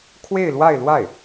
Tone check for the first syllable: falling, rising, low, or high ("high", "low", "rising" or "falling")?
falling